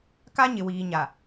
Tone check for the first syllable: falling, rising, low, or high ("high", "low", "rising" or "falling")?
high